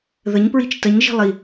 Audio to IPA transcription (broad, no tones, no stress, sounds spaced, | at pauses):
ð ə ɲ p ɹ i t͡ʃ t ə ɲ ʒ i̤ lˠ i